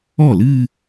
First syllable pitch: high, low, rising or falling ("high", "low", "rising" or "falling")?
falling